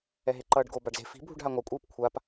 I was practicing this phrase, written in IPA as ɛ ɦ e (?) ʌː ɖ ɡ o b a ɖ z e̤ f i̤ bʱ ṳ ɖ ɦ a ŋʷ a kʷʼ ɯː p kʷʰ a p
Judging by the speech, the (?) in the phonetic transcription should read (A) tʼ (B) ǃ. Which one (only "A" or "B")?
B